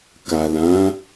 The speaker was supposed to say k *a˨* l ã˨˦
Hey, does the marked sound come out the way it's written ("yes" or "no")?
yes